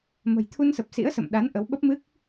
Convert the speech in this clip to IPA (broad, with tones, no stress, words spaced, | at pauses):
mə̤˨˩jt̪ʰu˧nsə˨˩p̚ sḭ˧˥ə̯sə̰˧˨m ɗa˨˦n ʔə˨˦wɓə˦˥p̚mɨ˦˥k̚